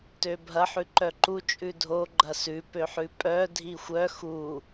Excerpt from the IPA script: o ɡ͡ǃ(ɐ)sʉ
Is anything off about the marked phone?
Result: no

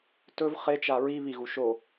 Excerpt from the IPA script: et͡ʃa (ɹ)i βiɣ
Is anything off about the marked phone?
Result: no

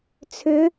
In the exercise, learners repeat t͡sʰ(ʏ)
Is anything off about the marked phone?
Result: no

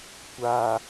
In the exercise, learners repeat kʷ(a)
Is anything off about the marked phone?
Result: no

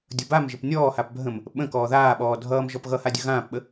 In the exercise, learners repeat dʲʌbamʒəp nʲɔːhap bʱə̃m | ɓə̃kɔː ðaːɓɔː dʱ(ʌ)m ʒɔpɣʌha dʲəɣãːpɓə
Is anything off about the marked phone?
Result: yes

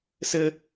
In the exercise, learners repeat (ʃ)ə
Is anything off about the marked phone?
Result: yes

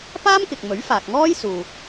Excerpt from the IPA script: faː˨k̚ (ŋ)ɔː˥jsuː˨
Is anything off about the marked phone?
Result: no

